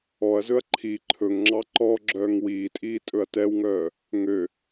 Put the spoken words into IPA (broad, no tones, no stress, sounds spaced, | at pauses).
ɔ ɐ̯ z ɵ ɐ̯ ǃʰ i ǃʰ ɵ ŋ ŋ͡ǁ ɑ ǃ ɔ ɡ͡ǁ œː ŋ w iː tʼ iː tʼ ɵ ɐ̯ t ɛ w ŋ œː | ŋ ø